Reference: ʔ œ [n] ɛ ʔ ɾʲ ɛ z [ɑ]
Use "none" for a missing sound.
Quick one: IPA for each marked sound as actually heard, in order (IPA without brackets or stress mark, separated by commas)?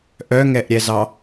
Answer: ŋ, ɑ